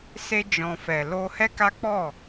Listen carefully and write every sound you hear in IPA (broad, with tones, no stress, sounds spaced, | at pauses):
s e˧ d͡ʒ ɔ̃˨ f ɛ˨ l o˧ h ɛ˦ k a˦ k͡p ɔ˦˨